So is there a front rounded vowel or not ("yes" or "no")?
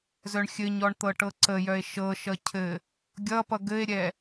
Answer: yes